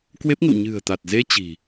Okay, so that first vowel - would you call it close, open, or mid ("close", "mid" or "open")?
mid